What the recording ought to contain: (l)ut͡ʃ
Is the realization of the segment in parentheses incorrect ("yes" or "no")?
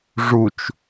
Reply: yes